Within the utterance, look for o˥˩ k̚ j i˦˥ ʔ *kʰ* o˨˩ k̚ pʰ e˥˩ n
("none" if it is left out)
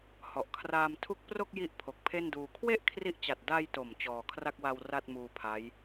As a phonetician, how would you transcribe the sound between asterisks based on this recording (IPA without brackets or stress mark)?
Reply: pʰ